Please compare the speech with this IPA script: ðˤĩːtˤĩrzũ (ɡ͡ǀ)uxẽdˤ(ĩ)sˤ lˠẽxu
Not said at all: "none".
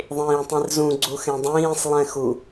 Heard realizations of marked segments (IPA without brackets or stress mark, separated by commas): ɡ͡ǀ, ĩː